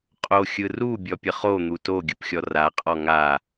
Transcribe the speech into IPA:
qʼ o xʲ ɯ r u bʲ ɔ pʲ ə χ o n̪ u t o ɡʲ ɯ p xʲ ɔ r a qʼ ɔ ŋ a

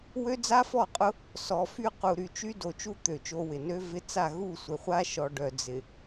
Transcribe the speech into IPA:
w ø˦ d͡z a˦ f ɔ˦˨ qʼ ʊ˦ | s ɔ˨ f y˦ q u˨ ɾ y˨ t͡ʃ y˦ d o˨ t͡ʃ u˦ t̪ ø˨ t͡ʃ o˦ w ɪ˨ n ø˦ v ɪ˦ t͡s a˦˨ ɣ u˦˨ sʷ ɪ˨ χʷ a˦ ʃ ɔ˨ ɖ œ˨ d͡z ɪ˨

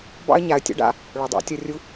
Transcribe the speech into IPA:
b ɑ̰˥ ə̯ ɲ a˩˧ ə̯ tʲ ɔ̰˧˥ ɖ a̰˧ | ɭ o˩ dˤ ɑ̰˧˥ tʲ o˧ rʲ u˧˥

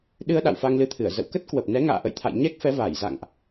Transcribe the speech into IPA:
ɗ ɨ˧ ə̯ ɗ a̰˧˨ w f a˧ ŋ l ɨ˨˦ t̪ʰ ɨ˧˩ ə̯ z ə̰˧˨ w k ə˦˥ t̚ k w ə˨˩ p̚ n ɛ˨˦ ŋ a̰ː˧˨ ʔ ə̰˧˨ j t̪ʰ a̰˧˨ j ɲ ɛ˦˥ k̚ f ɛ˨˦ v aː˧˩ j z a̰˧˨ ŋ ʔ

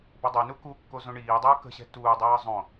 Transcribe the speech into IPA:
b ʌ dˤ ɛ n u k u kː o z õ ɳ iː dˤ ʊː k ə̤ ɕ ɛ̤ t uː dˤ ʌː zˤ õ

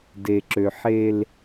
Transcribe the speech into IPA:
d e˨ ǁ ø˨ ħ e˦ l

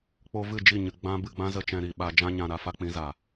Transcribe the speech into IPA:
k͡p o˧ v ɨ˦˨ d͡ʒ i˦˨ ɲ ɨ˨ ɡ͡b ã˦ b ɨ˧ ɡ͡b ã˦ z ə˦˨ t͡ʃ ɛ̃˧ ɾ i˨ ɓ a˧ d͡ʒ ã˦ ɲ ã˧ ɾ a˧ f a˦ k͡p ĩ˨˦ z aː˨

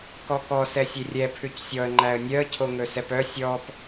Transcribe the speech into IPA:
k ɔ k ɔ s ɛ sʲ e rʲ ɛ pʰ ʉ c sʲ ɔ ə̯ ŋ͡ǃ æ ə̯ nʲ œ ə̯ cʰ o ŋ ɵ s ɛ p œ sʲ ɔ p

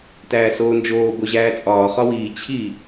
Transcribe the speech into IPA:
t æː s oː n d͡ʒ oː b o ʑ æː t͡sʼ ɒː χ ɒ w iː t͡ɕʰ i

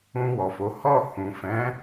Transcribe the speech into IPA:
ũ˧ w ɔ˨ f o˨˦ h ɔ˦˨ h ũ˨ f ɛ̃˨˦

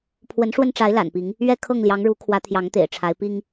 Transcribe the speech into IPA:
pʰ w ə˨˦ n ʂ w ə˧ n ʈ͡ʂ a˨˦ ɪ̯ l a̰˨˩ n p i˨˦ ŋ | ɥ ɛ˥˨ kʰ ɤ˥˨ ŋ l j ɑ˨˦ ŋ ɻ u˨˦ kʰ w ä˨˦ t̪ʰ j ɑ˨˦ ŋ t̪ ḛ˨˩ ɪ̯ ʈ͡ʂʰ a˨˦ ɪ̯ p i˦ ŋ

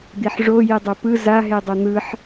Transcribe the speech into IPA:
d̪ i ħ ʐ o j i dˤ o p ɯ z a ɦ e dˤ o n̪ ɯ ħ

